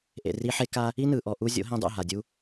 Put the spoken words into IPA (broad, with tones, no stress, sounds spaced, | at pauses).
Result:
ʔ ḛ˨ r i˧ ħ e˦ k a˦ | i˦ n ɯ˨ ʔ ɔ˨ ʔ u˧ zʲ o̰˨˦ ɦ ĩ˧ dˤ ṵ˦˨ ɦ a˨ dʲ u˦